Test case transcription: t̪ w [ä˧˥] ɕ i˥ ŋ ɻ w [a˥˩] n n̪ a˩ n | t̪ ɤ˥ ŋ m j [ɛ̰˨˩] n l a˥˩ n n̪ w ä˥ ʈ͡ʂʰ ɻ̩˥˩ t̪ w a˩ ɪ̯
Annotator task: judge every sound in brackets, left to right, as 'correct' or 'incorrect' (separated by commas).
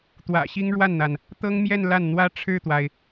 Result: incorrect, correct, incorrect